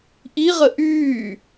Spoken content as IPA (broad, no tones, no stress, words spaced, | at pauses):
ʔiʁə ʔyː